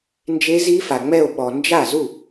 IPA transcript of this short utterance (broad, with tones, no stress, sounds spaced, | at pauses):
n d͡ʒ e˦˥ z i˦˥ f a˨ ŋ͡m ɛ˥˧ o̯ ɓ ɔ˨ n d͡ʒ a˥˩ z u˥˩